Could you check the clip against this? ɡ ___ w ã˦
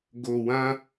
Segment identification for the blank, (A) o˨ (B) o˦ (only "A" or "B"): A